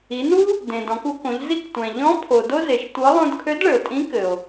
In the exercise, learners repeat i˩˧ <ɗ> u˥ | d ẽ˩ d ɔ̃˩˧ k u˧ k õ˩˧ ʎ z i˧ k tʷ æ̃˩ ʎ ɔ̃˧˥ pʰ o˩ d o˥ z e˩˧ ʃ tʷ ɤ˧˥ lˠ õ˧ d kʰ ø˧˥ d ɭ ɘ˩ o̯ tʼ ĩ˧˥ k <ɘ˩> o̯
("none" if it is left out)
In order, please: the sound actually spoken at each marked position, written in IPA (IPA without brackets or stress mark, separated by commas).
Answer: n, ɘ˩